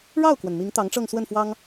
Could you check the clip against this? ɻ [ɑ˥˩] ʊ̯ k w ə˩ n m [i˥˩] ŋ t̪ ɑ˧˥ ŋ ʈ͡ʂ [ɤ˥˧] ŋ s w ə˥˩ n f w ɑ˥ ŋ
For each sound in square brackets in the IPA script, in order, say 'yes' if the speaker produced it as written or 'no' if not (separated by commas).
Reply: yes, no, yes